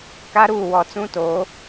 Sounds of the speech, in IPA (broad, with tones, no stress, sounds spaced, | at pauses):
k a˦ ɾ uː˦˨ w ɔ˦˨ t͡s ũ˦ t oː˨˦